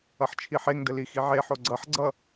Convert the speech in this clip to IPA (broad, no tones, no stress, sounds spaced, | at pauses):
ʌ ħ t͡ʃʰ i ħ e ŋ d ə l i x i ʕ e ħ o ɡ͡ǀ ʌ ħ ɡ͡ǀ ʌ